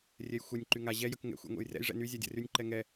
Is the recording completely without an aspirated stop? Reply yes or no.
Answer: yes